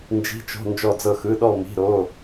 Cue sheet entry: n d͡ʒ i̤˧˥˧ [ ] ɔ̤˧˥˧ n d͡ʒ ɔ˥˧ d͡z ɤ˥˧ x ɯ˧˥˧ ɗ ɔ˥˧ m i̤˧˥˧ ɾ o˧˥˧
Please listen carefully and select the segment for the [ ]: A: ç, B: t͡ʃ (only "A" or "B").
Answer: B